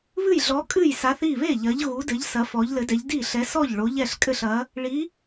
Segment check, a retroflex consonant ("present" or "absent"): present